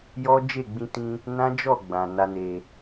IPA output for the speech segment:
j ɔ˦ d͡ʒ e˦˨ ɡ͡b ĩ˧ t ĩ˧ | n ã˦ d͡ʒ ɔ˦˨ ɡ͡b ã˨ n a˧ n e˨

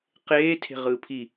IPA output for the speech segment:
q eː tʰ e̤ ʁ ɯː pʰ i

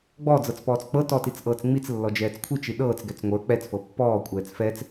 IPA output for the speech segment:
ɡ͡b ɔ d͡z ɤ t͡s p ɔː t͡s k͡p ɤ t ɔ t i t͡s ʔ ɤː t͡s ŋ͡m i t͡s lː ɔ d͡ʒ ɛː t͡s kʷʰ i t͡ʃ i ɗ ɤː t͡s ɡ ɛ t͡s ŋʷ ə˞ k͡p ɛ t͡s f ɤ pː ɔː kʷʼ ɛː t͡s f ɛ t͡s

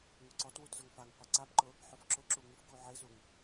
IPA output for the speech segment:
ŋ u ǀ ɔ t w u t z ʊ ŋ f a ŋ qʷ e ǀ a b ǃ ʊ | ħ ʊ f ǁ ʊ ǁ u ŋ ʉ f k u ʕ e z u ŋ

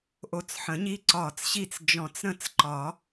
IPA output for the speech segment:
ʔ o˧˩ t͡s ħ ə̃˨˩˦ ɲ i˦ ǀ ɒː˧˩ t͡s ɕ i˥˩ t͡s d͡ʒ ɔ̃˧˩ t͡s ɾ ə̃˥˩ t͡s ǃ ɒ˨˩˦

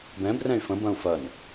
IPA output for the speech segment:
b ɛ̃ b r ɛ̃ y̯ f ə̃ b ɐ̃ u̯ f ɐ n

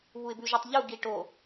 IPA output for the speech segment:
β u ɪ̯ b ʉ ʒ ø tˤ ʎ u ɡ i ʈ o

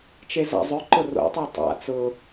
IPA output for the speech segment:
t͡ʃ e z a̰ zˤ ø ǃ ʊ r o̰ tˤ e tˤ a̰ t͡s ʊ

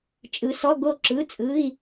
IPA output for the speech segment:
t͡ʃʼ ɯ˨˦ s ɔ˧˥˧ ɡ o˥˩ ǁ ɯ˧˥˧ t͡sʼ ɯ˧˥˧ i̯

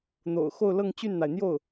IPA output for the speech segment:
n̪ o̰˨˩ ʊ̯ x o˥˧ ʊ̯ l ɤ˥˧ ŋ t͡ɕ y˥˩ n n̪ a˩ ɪ̯ n̪ j o˥˩ ʊ̯

